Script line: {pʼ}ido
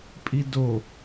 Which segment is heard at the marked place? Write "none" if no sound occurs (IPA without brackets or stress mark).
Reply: pʼ